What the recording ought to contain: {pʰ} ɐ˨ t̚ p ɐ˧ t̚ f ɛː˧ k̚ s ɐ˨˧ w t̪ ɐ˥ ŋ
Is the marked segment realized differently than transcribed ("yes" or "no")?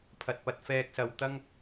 no